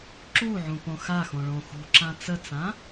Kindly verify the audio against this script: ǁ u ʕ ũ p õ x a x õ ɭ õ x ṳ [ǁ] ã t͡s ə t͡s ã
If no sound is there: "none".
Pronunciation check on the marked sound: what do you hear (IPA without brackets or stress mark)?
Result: ǁ